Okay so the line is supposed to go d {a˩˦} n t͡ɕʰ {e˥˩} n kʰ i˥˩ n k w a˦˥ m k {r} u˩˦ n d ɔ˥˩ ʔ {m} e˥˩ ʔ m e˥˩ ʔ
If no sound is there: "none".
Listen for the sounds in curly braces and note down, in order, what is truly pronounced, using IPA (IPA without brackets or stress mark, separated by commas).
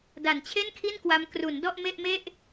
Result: a˩˦, e˥˩, r, m